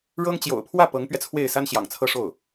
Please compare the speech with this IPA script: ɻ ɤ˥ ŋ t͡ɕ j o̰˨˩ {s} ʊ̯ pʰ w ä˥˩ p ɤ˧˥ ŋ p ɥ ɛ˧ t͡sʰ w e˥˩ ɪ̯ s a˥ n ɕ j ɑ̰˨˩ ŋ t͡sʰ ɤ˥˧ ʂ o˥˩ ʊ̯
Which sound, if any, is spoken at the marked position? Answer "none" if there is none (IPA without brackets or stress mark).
none